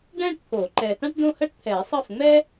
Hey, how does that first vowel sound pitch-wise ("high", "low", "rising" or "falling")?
falling